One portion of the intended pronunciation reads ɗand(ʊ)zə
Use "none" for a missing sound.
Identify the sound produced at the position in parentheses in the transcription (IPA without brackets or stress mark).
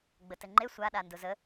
ʊ